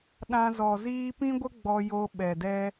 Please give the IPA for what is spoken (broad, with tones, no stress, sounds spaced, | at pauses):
ɗ ã˧ z ɔ˨ z iː˦ p ĩ˦ ɡʷ ə˦ ɡ͡b ɔ˧ j o˧ ɓ ɛ˨ d ɛ˦